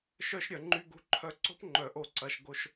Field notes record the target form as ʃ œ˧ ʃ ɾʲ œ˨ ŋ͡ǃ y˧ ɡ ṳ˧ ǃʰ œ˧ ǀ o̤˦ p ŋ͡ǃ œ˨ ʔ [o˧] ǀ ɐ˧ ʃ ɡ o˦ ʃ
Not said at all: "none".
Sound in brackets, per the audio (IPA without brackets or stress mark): o˧